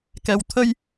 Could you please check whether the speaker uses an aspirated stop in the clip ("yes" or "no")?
yes